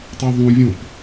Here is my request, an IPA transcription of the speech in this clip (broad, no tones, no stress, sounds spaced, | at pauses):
tˤ i ðˤ ũ vʲ õ p